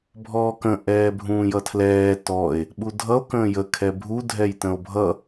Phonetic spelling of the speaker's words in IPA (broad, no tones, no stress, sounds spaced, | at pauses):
bʱ ɔː k ə̃ ʔ ɛː bʱ ũː j ʌ tʰ l ɛː t ɔ e̯ | ɓ u dʱ ʌ o̯ k ə̃ː j ə kʰ ɛ bʱ u dʱ ɛ j t ə̃ o̯ bʱ ʌ